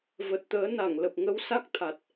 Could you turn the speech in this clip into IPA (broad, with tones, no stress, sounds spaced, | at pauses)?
v ə˨˩ t̚ t̪ əː˨˦ n a˧˩ ŋ l ə˨˩ p̚ ŋ ə˧ w s a˦˥ k̚ t̪ʰ a˨˩ t̚